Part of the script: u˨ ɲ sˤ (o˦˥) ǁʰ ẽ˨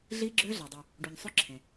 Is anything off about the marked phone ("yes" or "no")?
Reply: no